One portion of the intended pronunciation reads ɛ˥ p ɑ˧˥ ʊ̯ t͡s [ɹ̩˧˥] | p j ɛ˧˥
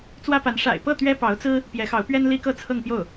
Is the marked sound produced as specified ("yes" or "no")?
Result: no